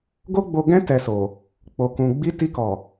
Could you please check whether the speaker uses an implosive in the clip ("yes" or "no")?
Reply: no